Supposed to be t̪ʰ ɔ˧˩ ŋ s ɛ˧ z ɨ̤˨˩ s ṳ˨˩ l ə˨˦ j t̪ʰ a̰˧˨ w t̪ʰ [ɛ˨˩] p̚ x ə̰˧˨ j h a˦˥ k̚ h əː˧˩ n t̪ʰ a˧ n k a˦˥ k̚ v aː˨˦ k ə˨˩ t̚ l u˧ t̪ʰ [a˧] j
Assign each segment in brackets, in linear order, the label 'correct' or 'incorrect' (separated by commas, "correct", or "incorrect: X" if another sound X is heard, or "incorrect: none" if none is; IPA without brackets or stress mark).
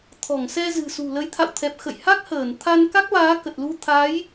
correct, incorrect: a˨˦